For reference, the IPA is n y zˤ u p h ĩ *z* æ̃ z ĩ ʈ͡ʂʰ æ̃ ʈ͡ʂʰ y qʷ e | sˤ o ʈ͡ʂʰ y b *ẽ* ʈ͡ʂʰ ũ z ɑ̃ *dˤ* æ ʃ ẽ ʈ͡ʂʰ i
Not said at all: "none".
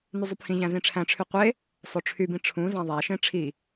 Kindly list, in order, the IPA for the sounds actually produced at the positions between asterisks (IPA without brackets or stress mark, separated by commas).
ʑ, ĩ, ðˤ